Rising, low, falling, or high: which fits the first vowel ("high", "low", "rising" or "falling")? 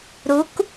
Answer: rising